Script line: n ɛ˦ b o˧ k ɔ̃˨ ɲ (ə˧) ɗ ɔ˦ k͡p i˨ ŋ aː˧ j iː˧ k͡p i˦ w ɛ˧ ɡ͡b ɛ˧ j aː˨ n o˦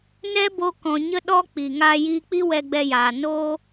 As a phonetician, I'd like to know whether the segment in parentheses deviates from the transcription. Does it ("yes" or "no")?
no